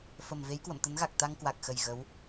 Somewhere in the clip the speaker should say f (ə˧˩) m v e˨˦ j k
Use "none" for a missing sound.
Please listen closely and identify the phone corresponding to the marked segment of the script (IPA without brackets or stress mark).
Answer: ə˧˩